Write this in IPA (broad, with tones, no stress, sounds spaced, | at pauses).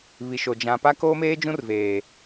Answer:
β i˨ ʃ o˨ d͡ʒ ã˨ p a˦ k oː˦ m eː˦ d͡ʒ ũ˦ r v eː˨